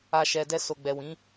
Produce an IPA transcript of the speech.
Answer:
a˨ ʃɛ˨dɛ˧ so˨ɡ͡bɛ˨wĩ˨˦

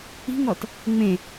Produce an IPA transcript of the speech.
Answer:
i̤ŋɔt | ŋ͡mẽ

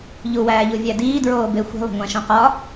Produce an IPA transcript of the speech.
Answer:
ʎuwæːʎuvʲæ diːdɹoːbe xʷi̤lˠo̤ŋʷæ̃ʃõ qɒ

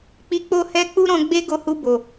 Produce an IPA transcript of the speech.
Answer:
k͡pi˧k͡po˦hɛ˦ k͡pu˦ɾɔ̃˧ɡ͡be˦ ɡo˧hu˧ bo˨

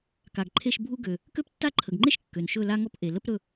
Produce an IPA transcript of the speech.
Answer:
ka˨ɡǃʰe˥˧ʃ bʱu˥ ɡø˨ | kø˥ptːa˥˧ǃʰə˨ɡŋ͡ǃe˥ʃ kːø˨nʃɵ˥˧la˥ŋɔ˥p ʔe˨ lə˥pɾɵ˥˧

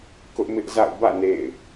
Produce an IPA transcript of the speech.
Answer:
kʊ˦ʔmɪ˦ʔza̰˦˨ʊ̯ bä̰˦˨ nḛ˦˨ɪ̯

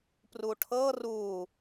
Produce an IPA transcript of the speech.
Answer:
pruʈʰɤ ru

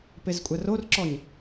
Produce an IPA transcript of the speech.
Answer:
pezkʷʼærorǁɔɲ

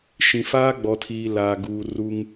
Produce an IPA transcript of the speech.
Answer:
ʃĩ˨faː˦ɡ͡bɔ˨tʰiː˨ laː˨ɡuː˨ ru˦ŋ

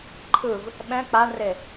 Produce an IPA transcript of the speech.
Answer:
ǃʰɯv | ɓɛ̃ k͡paɳre

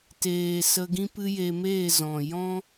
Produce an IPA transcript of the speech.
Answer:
teː˨ sə˧ɡĩ˦pɨ˦je˧ meː˦˨ zɔ̃˨ jɔ̃˦

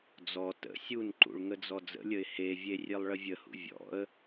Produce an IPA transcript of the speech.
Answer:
d͡zɔ tə̰ sʲunǃṵɭ ŋəd͡zɔd͡zə̰lʲəɪ̯ hevʲe rʲelˠɭəvʲəhṵ vʲɔ̰ə̯

